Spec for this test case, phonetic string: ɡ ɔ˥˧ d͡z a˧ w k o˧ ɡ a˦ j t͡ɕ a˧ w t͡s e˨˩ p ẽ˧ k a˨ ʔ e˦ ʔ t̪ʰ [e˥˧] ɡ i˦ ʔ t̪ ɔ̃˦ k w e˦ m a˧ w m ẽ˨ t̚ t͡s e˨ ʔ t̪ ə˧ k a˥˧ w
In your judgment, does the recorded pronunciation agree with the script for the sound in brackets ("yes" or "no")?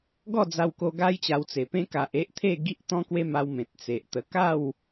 yes